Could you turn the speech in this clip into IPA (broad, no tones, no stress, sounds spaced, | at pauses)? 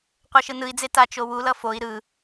qʷ ɛ ʃ ɯ n ɯ i̯ d͡z e t a t͡ʃ o w u l ʌ f o i̯ ɾ ɯ